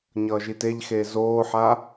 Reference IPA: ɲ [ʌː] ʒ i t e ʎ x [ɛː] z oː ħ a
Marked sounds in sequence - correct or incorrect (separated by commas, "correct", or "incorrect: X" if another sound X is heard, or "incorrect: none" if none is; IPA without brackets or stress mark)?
correct, incorrect: eː